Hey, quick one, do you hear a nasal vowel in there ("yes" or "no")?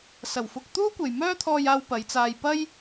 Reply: no